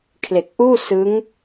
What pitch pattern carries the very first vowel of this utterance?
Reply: low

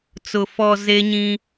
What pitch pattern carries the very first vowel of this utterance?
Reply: low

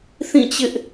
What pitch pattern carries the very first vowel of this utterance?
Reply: falling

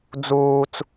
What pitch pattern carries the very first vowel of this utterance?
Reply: high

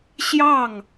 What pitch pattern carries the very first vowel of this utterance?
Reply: falling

